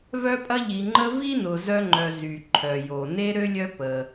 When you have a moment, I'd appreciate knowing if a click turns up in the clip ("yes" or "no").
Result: yes